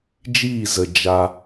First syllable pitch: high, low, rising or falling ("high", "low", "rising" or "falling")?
falling